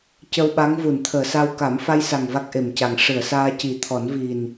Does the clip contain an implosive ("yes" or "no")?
yes